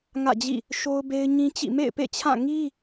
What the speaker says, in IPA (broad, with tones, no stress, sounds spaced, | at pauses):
ŋ ä̰˦˨ d͡ʑ ḭ˦˨ | ʃ o˦ ʊ̯ b e˦ ɪ̯ ɲ ĩ˦ t͡ɕ ḭ˦˨ m ḛ˦˨ ɪ̯ p ḛ˦˨ t͡ɕʰ ã˦˨ ŋ i˦